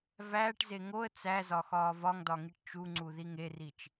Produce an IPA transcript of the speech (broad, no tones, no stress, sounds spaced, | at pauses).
v æː ʈ z e ŋ o ə̯ t͡s æ z ɒ x ɒː v ɒ ŋ d ɒ ŋ i ʈ t͡ʃ u ŋ͡ǀ u ð i ŋ e r i t͡ʃ